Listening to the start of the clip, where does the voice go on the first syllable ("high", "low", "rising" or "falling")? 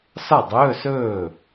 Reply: falling